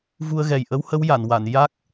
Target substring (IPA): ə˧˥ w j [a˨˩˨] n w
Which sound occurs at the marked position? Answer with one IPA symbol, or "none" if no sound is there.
a˨˩˨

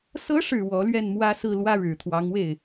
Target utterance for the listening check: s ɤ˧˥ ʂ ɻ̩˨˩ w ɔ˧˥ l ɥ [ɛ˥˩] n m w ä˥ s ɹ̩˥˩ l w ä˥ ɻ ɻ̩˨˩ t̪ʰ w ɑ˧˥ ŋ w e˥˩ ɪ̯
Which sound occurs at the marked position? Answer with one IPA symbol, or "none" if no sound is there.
ɛ˥˩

